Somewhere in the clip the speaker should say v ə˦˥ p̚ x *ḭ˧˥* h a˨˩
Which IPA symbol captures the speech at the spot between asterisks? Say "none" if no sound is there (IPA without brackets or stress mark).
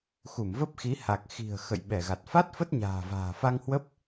i˨˦